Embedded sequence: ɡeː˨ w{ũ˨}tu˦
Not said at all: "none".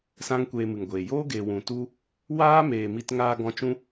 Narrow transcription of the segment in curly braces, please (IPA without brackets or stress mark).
ũ˨